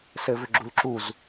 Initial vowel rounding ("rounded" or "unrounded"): unrounded